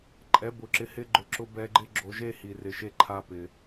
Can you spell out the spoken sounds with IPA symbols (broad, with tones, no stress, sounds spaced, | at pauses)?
ǃʼ ɛ˨˦ b ʊ˨ ǁ ɪ˧ h ɪ˧ ɡ͡ǃ ʊ˨ ǁ ʊ˧ b ɛ˧ ɡ͡ǃ ɪ˦ ɡ͡ǁ o˧ ʒ e˦ h i˨ r ɪ˨ ʃ e˦ ǃʰ a˦ p ɪ˧